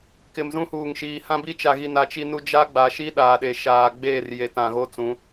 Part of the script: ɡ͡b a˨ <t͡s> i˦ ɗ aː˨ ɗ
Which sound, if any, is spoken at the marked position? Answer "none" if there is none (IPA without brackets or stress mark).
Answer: ʃ